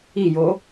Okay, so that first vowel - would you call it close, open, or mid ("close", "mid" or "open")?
close